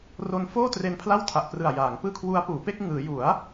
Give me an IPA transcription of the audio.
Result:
r o˦˥ n f oː˥˩ t r e˧ n pʰ l a˥˩ w tʰ a˨˩ ʔ p r ɯ˨˩ a̯ j aː˩˦ ŋ p ɯː˥˩ kʰ w u˦˥ a̯ p uː˩˦ p e˥˩ k̚ ŋ ɯː˩˦ j u˩˦ a̯

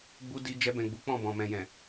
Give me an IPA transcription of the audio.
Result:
ɡ͡b u˦ d i˧ d͡ʒ ɛ˧ b ɛ̃˨ ɡ͡b u˨˦ k͡p ɔ̃˦˨ b ɔ̃˨ m ɛ̃˨ j ɛ̃˨

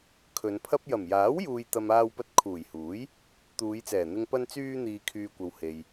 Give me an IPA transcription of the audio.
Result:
kʰ ɵ˨˧ n pʰ ɐ˥ p̚ j ɐ˨˩ m j aː˨˥ w j uː˨ j t̪ ɐ˨ m aː˧ w p ɐ˧ t̚ kʰ uː˨˩ j h uː˨˥ j | t̪ uː˨˧ j t͡s ɛː˨˩ n̪ ɪ˧ ŋ p ɐ˧ n t͡s yː˧ n̪ iː˨ kʰ yː˨ kʷ ɐ˨ w h e˨ j

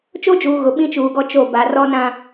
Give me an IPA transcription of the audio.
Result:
t͡ʃ o˦ d͡ʒ uː˨ ɣ ʊ˨ ɓ ĩ˦ t͡ʃ uː˨ ɡ ɔ˦ t͡ʃ o˦˨ b a˨ r ɔ˦ n ã˦

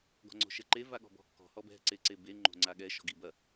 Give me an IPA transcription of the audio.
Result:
ɡ ɔ̤ ŋ͡ǀ o̤ ʃ ɛ ǃ e v a ɠ ɔ̤ b ɔ̤ kː ɔ̤ h ɔ b ɛ̤ ǀ e ǀ e b e ŋ͡ǃ o̤ ŋ͡ǀ a ɠ ɛ ʃ ɔ̤ ɡ i b ɐ

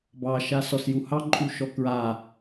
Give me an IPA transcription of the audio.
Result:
b ɑ ʃ a s ɔ s j u h ɑ ǃʼ u ʃ ɔ k ɹ a

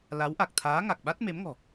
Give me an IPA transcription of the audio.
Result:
l a˨˦ w ʔ a˨˩ k̚ t̪ʰ aː˨˦ ŋ a˨˩ k̚ ɓ a˦˥ t̚ m e˨˦ m ŋ ɔ̤˨˩

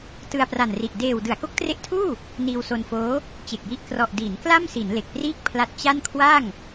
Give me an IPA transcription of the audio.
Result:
t ɯ˧ a̯ p r a˨˩ n r i˨˩ ʔ d eː˨˩ w d ɯ˩˦ a̯ k o˦˥ k̚ t r e˦˥ ʔ tʰ uː˥˩ | n iː˧ w s o˧ n f oː˦˥ | t͡ɕ e˨˩ k̚ j i˥˩ ʔ k r ɔ˨˩ ʔ d iː˩˦ n k l a˥˩ m s i˩˦ n l e˨˩ k̚ p r iː˥˩ k̚ pʰ l a˦˥ t̚ t͡ɕ a˥˩ n kʰ w a˥˩ ŋ

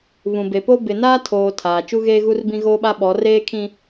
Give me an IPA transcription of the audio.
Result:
β ũ˨ b e˨ p o˦ b ɪ˨ n aː˦ tʰ oː˨ tʰ aː˨ t͡ʃ u˦ ɣ eː˦ ɣ u˦ r b ĩ˦ ɣ oː˦ ɓ a˦ ɓ ɔ˨˦ r eː˦ kʰ ĩ˦

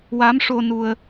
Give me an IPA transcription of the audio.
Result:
w a˧˥ m ʂ o˧ n u˧ ə̯

